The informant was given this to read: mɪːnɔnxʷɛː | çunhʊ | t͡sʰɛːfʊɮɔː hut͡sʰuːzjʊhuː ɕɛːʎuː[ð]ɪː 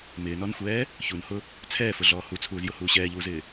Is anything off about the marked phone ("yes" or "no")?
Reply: yes